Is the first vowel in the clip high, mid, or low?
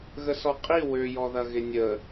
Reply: mid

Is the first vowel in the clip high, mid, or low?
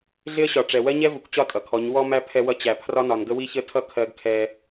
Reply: high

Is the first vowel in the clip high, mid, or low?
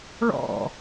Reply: mid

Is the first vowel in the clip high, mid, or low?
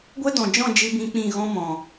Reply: mid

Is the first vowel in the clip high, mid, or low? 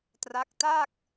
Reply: low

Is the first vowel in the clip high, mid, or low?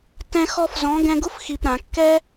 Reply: mid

